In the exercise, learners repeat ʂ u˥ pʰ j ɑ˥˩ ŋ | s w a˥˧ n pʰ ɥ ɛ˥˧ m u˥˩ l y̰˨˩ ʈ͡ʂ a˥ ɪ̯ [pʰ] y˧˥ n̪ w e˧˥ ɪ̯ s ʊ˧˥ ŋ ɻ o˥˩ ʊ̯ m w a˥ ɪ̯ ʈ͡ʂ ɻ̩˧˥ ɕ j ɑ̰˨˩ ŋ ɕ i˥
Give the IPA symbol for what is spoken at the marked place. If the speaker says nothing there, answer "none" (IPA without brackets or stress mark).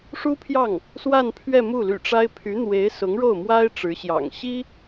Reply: pʰ